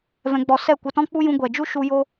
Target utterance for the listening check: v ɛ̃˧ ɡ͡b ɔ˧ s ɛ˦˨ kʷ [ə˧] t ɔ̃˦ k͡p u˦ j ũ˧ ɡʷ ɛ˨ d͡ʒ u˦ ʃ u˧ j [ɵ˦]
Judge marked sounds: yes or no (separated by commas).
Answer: yes, no